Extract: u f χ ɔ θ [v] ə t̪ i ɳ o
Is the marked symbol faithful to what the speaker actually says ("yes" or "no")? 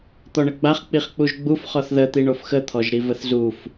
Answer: no